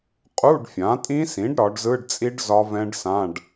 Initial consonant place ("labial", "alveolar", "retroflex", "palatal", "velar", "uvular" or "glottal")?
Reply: uvular